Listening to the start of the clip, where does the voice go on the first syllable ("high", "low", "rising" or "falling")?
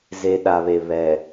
low